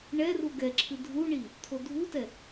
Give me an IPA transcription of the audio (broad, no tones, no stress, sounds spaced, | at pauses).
ɳ ɛ r u ɡ ɛ ǁʰ ɨ dʱ u ɳ i | t̪ʰ o dʱ u t ɛ